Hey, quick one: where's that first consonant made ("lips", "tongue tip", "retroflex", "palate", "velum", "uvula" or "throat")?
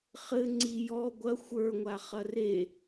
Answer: uvula